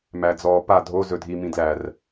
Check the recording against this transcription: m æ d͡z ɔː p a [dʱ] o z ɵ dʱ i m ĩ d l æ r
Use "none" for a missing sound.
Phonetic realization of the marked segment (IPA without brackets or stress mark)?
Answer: dʱ